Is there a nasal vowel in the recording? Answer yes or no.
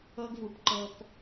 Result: no